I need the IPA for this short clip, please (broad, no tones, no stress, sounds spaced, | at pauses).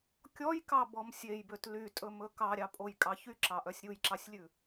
kʲ ɔ j k ɑ b ɔ m sʲ e j b ø t l y tʼ ɵ m ɵ k ɑ ɾʲ ɑ pʼ o j kʼ ɑ ç y ǁ ɑ ʔ œ sʲ ɾʲ u j ǁ ɑ sʲ lʲ ʉ